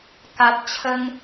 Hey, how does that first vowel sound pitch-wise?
low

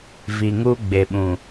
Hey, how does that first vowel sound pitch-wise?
low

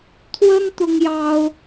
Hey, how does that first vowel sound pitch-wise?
high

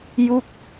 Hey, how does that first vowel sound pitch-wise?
falling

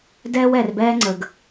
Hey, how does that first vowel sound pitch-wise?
high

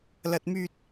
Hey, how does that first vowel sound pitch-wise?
high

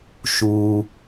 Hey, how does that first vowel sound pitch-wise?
low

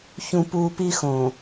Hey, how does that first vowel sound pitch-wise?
high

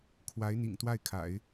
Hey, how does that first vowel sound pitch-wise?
rising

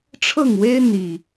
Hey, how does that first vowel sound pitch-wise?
falling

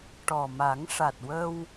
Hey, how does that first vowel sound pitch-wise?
low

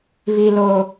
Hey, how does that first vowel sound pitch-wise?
low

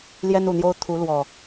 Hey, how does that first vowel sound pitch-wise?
high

